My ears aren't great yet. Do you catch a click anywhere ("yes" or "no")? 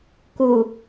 no